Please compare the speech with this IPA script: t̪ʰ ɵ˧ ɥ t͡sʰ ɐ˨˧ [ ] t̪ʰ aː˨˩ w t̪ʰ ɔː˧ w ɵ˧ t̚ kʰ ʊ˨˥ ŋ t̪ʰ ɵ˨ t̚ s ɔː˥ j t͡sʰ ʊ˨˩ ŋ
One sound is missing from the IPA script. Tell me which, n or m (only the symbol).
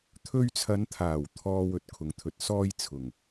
n